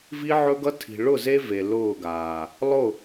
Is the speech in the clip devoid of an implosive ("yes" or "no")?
yes